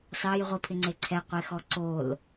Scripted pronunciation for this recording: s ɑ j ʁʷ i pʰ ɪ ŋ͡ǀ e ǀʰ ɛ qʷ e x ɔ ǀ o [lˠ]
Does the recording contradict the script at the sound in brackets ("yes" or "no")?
yes